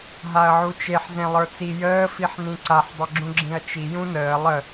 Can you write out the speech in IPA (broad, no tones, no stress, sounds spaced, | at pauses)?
ɦ a ɐ̯ ʕ u t͡ʃ e ħ z ẽ lˠ ə˞ t͡s i j əː f i ħ n ĩ ǀ a ħ dˤ ə ɡ͡ǁ ũ ɡ͡ǁ ĩ ɐ̯ t͡ʃ i j ũ n əː lˠ ə